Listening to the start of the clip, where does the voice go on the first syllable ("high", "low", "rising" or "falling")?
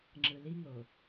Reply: low